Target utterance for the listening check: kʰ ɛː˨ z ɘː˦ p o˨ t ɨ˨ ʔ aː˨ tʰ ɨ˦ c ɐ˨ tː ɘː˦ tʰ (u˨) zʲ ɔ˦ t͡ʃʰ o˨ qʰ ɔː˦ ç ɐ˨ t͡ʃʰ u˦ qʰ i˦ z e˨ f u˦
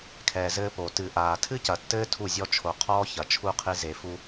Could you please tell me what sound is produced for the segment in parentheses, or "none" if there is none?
u˦˨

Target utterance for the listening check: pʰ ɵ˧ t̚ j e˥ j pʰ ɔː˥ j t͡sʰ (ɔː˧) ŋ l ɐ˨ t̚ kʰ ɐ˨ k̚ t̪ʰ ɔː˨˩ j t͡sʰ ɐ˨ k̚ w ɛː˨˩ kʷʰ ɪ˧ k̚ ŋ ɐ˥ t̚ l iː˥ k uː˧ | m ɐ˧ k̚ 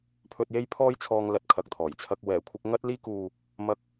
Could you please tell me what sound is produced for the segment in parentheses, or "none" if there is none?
ɔː˧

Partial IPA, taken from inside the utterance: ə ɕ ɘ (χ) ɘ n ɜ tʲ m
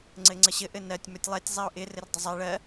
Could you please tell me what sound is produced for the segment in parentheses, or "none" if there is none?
ʔ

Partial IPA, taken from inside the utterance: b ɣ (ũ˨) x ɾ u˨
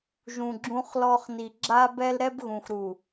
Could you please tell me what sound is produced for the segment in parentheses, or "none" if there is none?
ũ˨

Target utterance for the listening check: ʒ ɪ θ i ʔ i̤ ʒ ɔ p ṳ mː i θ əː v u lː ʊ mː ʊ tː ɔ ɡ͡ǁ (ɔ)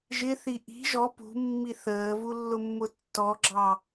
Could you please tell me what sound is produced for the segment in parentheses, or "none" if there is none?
ɑ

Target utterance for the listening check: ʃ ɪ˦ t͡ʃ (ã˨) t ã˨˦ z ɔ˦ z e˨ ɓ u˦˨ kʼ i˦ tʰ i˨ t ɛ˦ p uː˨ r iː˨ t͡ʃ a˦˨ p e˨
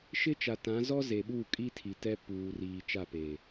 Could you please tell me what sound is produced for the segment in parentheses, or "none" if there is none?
a˨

